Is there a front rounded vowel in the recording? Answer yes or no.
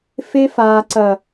no